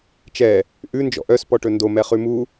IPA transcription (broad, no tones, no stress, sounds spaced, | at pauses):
t͡ʃ ɛ | ʔ ʉ n d͡ʒ ɔ̰ ʔ œ s p ɔ ʈ ɵ n d o m ɛ χ ʉ m u